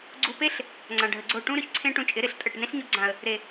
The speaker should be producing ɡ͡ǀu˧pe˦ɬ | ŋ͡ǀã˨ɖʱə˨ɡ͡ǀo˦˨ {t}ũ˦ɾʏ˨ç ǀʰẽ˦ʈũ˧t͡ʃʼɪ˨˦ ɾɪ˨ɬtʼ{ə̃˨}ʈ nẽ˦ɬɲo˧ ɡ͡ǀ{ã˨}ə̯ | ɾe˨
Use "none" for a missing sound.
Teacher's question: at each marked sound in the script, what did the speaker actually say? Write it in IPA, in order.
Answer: ʈ, ə˨, ã˨

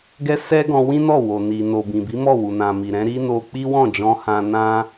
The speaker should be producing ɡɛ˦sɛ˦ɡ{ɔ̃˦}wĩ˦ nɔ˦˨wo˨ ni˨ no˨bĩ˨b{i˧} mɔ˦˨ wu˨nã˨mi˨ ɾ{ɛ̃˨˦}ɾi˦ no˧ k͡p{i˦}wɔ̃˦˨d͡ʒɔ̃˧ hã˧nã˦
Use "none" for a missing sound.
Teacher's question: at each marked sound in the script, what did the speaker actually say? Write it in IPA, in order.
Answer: ɔ̃˧, i˨˦, ɛ̃˨˦, i˦

